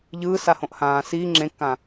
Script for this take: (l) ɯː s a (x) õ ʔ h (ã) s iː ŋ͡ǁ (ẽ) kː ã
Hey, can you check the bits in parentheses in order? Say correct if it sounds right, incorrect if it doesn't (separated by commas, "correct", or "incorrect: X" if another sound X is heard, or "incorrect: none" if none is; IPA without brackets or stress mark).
incorrect: ʎ, incorrect: h, incorrect: ãː, correct